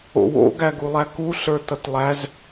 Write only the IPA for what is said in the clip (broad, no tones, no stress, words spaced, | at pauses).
o̰wo̰ ɡæɡulˠæku ɬə˞tʌtlˠæz